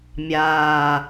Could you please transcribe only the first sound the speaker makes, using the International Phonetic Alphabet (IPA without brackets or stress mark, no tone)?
mʲ